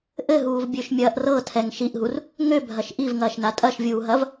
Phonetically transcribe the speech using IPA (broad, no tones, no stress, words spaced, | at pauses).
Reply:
ʔɘɦuːvbʲøʃmʲɐːʔ rɤtʰɛŋ ʃiʔɦur | ŋøbʱɐʃ ʔivŋɐːʃna tʼɐʃvʲuːɦɐv